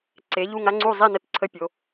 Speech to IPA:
ǀ e˩˧ ʎ u˧˩ ŋ a˧ ŋ͡ǀ u˧˩ zˤ i˧˩ n ə˧ t ǀʰ ə˧ pʲ o˩˧

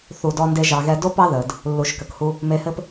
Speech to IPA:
θ u˨ d ɔ˧ n d e˧ ʒ ɑ˨ ɣ ɛ˧ d o˦ p ɑ˦ ð əː˨ d | lː u˨ ʃ k ə˨ k h u˧ | m e˧ h ɘ˦ p

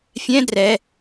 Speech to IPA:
fʲ ɛ̃ d r ɛ

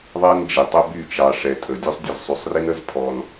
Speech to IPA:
ðˤ ɛ˦ n d͡ʒ i˨ tˤ ʊ˦ b y˦˨ t͡ʃ ɑ˨ ʂ ɛ˨ tʼ ə˨ dʲ u˦ sˤ dʲ ə˦˨ z sˤ y˨ sˤ r i˦ n ə˦ z pʰ ɔ˦ n

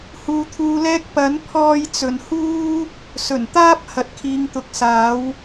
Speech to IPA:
h uː˨ t̪ʰ uː˧ l ɛː˥ k̚ p ɐ˨˥ n pʰ ɔː˧ j t͡s ɵ˨ n h uː˥ | s ɵ˨˩ n t̪ aː˥ p̚ h ɐ˨˥ t̚ kʰ iː˨˧ ŋ t̪ ʊ˨˥ k̚ s aː˨˥ w

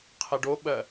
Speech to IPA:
qʰ ɛ ɖ o ɓ ɜ

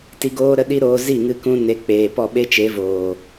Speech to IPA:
t i˧ ɡ oː˦ ɾ ə˦ ɗ i˦ ɾ oː˧ z i˦˨ ŋ ɨ˧ k ũ˧ n e˨˦ k͡p eː˨ p ɔ˦˨ ɓ e˦ t͡ʃ e˨˦ v oː˨

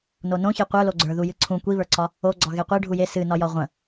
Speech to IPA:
n o n õ ç e qʷ ə˞ l o ɡ͡ǀ ə˞ ð u j ɨ ǀʰ ũ kʷ i β ə˞ ǀ ɒ | o ɡ͡ǀ ɒ ɣ e qʷ e ɖʱ u j e s ɨ n ɒ j ɒ ʁʷ ə̃

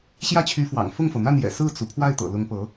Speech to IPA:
ɕ j ä˥˩ t͡ɕʰ y˧˥ f w ɑ̰˨˩ ŋ f ʊ˥˩ ŋ f ɤ˩ n̪ a˥˩ n j ɛ̰˨˩ s ɹ̩˥˩ t͡s u˩ pʰ w a˥˩ ɪ̯ t̪ ɤ̰˨˩ l ʊ˧˥ ŋ p ɤ˧˥

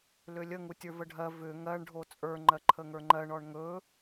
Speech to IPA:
l ʏ lʲ ə ŋ u tʲ ə˞ v ə ɖʱ ɜ v ʏ ŋ ɜ ɳ ɖʱ o t͡sʼ ə˞ ŋ͡ǃ ɜ ǃʰ ə ŋ ə˞ ŋ͡ǃ ɜ ɳ ɔ ɳ ŋ ɵ

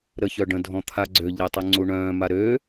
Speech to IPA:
ɾ ə ç œ ɖ ə̃ dʱ ɔ̃ t̪ʰ a ɡ͡ǀ ø ʎ e tˤ y ŋ͡ǀ u ɳ œ̃ː m a ɾ øː

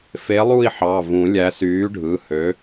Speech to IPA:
f e˨˥ lˠ u˥˧ i̯ ħ ɑ˩˧˩ v ũ˨˩˦ lʲ æ˨˥ s yː˨˥ ɖʱ ɯ˩˧˩ h ø˨˥

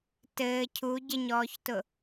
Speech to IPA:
t ɘː cʰ u ɟ ɘ ɲ ɔː ç t ʊ

